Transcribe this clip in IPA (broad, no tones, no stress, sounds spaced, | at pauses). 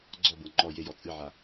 ɡ͡ǀ ɔ b ɤ ŋ͡ǃ ɔ j e j ɔ t͡sʼ ɨ ʕ a